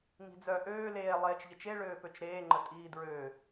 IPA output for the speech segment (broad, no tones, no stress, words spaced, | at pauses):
ŋi̤d͡zœ ʔøː leː lˠeːt͡ʃʎət͡ʃe ɭøːpøt͡ʃɾeːŋ͡ǃə tʼiːdɹø